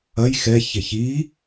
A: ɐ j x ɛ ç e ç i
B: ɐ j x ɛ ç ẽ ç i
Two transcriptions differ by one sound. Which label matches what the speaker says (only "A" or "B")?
A